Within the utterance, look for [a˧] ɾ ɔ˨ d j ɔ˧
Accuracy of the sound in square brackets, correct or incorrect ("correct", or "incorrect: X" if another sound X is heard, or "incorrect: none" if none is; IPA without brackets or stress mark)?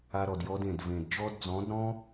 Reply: correct